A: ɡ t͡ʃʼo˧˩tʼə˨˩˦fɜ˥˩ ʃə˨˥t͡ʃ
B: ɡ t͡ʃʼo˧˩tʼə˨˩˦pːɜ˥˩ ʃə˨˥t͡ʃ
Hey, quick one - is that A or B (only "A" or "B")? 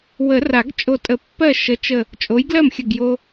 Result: B